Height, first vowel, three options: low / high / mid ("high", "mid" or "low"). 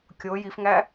mid